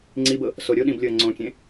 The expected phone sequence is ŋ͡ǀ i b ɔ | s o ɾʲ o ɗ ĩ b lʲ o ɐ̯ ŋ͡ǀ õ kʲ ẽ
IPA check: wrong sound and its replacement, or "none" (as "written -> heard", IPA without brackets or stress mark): ɔ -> ɤ